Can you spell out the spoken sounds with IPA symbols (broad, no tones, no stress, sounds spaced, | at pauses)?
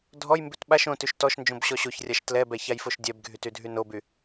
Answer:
dʱ ɔ j m b ʉ t ɓ a ʃ õ t ʉ ʃ t ɔ ʃ n d͡ʒ õ b ɕ ɔ ɕ o ç rʲ a ʃ t l ɛ b ɛ ç a j f o ʃ dʲ ɛ b ɡʱ y t y dʱ y n o b y